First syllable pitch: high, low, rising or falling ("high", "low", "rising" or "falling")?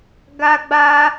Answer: high